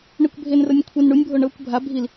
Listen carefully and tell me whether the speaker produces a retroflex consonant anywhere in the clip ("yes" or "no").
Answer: yes